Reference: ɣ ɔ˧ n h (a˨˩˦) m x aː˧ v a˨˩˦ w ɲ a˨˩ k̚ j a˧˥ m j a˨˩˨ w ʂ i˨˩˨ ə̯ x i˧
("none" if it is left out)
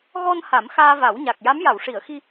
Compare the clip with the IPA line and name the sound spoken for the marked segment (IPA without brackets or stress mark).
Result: a˨˩˦